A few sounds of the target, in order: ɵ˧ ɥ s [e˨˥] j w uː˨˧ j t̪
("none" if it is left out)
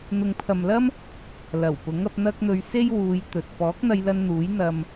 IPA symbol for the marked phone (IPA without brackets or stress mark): e˥